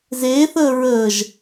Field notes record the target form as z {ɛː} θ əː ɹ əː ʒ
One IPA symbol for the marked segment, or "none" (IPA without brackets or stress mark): eː